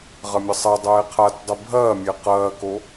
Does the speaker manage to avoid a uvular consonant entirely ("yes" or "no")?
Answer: no